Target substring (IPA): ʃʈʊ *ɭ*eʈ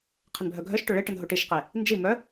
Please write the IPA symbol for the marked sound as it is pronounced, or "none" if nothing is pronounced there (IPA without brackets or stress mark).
ɭ